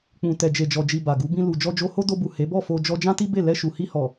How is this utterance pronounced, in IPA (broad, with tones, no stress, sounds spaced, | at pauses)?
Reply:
k͡p ũ˨ t ɛ˨ d͡ʒ e˨ d͡ʒ ɔ˨ d͡ʒ i˨ b a˨ ɡ u˨˦ b ĩ˧ l u˨ d͡ʒ ɔ˧ d͡ʒ o˧ h o˦ d o˧ b u˨ h e˨˦ b ɔ˦˨ f o˧ d͡ʒ ɔ˧ d͡ʒ ã˦ t i˦ b e˦˨ l ɛ˧ ʃ u˨ h i˧ h ɔ˨